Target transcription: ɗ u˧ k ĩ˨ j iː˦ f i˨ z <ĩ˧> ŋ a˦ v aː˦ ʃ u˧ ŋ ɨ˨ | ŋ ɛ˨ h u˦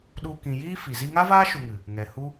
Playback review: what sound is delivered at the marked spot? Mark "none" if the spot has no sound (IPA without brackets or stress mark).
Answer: i˧